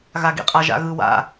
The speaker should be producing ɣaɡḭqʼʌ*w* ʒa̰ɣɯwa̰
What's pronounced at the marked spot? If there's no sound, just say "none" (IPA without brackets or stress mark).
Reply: none